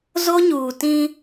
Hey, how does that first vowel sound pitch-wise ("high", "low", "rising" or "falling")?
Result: high